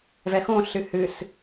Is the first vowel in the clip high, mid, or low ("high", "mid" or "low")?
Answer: mid